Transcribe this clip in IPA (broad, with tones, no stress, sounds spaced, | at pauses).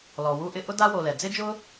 l ɔ˩ w u˦ ʔ ɪ˦ ʔ ʊ˦ d a˥ w o˨ l ɛ˩ d͡z ɪ˦ d͡ʒ ʊ˦